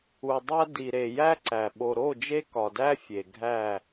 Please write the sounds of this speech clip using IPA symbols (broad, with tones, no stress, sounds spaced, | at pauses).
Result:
u˨ dˤ æ˦ d i˨ ɾ e˨ j æ˦ ǀ æ˨ ɓ o˨ ɾ o˦˨ d͡ʒ e˦ k ɒ˨ d æ˦ fʲ e˨ ɡʱ æ˦˨